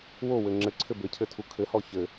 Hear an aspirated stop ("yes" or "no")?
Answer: yes